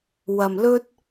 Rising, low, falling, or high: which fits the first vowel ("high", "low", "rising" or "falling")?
low